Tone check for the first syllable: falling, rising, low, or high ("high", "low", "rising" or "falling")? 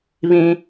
high